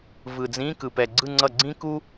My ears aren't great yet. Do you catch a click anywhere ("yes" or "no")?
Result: yes